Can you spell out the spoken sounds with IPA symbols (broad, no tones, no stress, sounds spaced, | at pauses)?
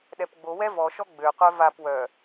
ɗ ɛ p ɡ͡b o w ɛ v ɔ ʃ ɔ ɡ͡b ø qʷ œ v a p w œ